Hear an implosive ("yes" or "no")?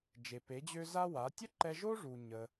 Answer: no